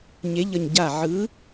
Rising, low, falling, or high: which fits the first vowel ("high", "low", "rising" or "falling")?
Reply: rising